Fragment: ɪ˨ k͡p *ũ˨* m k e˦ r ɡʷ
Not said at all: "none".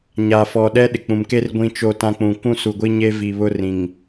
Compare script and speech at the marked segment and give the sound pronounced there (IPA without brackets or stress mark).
ũ˨